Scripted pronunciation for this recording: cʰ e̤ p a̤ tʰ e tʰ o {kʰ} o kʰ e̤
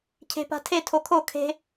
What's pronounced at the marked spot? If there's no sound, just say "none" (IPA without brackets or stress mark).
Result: kʰ